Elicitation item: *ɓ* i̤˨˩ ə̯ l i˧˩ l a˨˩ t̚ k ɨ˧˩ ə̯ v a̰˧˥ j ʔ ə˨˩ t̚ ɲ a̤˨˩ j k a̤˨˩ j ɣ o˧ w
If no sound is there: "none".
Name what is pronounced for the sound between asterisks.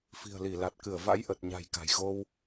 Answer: f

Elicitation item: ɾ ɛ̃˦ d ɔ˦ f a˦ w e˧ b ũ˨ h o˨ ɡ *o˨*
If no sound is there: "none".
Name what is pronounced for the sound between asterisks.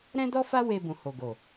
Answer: o˨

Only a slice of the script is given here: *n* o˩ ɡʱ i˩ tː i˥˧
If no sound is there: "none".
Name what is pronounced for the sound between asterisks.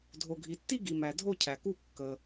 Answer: dʱ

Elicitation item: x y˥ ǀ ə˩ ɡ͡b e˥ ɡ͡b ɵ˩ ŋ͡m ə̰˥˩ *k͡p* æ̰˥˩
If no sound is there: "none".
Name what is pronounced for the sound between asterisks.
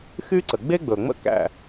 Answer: k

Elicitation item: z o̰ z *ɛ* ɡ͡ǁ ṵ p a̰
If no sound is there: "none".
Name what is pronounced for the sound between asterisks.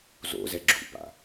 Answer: ɛ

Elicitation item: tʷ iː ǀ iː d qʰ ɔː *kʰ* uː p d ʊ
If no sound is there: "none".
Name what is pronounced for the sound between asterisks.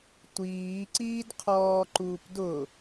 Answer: ǃ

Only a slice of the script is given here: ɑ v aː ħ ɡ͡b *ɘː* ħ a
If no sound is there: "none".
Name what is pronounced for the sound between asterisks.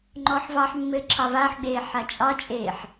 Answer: eː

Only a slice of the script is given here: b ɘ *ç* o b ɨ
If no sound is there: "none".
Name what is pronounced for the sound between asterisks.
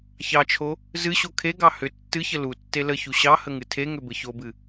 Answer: ç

